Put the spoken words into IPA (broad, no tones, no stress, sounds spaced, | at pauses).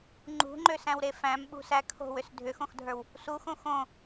ŋ͡ǃ ṳ ŋ͡ǃ ø s æ̃ w ɾ e f æ̃ m ɓ ṳ s æ kʰ o̤ w ʏ s dʱ ʏ x õ x dʱ ə˞ w | s u x õ x õ